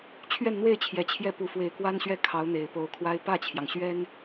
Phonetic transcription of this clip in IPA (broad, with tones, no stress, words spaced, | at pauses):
t͡ɕʰɥɛ˥˧nn̪we˥˩ɪ̯t͡ɕʰjɛ˨˩ t͡ɕʰjɛ˥˩pu˧˥ fwe˨˩ɪ̯kwa˥nɕɥɛ˥˩ kʰɑ˧˥ʊ̯n̪e˨˩ɪ̯po˧˥ʊ̯kʰwa˥ɪ̯ pä˥˩t͡ɕʰjɑ˩ŋɕɥɛ˥n